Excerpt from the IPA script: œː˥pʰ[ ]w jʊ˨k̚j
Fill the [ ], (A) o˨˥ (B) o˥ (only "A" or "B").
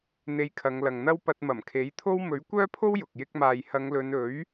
B